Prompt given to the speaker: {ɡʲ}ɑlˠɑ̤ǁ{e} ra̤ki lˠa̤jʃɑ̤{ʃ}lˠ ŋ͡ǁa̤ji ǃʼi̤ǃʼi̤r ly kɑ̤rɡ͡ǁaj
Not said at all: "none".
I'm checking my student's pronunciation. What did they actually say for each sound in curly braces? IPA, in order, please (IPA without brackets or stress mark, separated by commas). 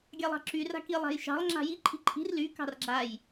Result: ɡʲ, y, none